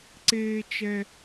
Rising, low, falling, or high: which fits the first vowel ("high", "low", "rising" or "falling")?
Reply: high